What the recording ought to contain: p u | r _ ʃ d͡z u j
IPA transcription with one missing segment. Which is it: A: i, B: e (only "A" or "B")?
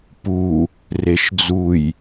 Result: B